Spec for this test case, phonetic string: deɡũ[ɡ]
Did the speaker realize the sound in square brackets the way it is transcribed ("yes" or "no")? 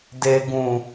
no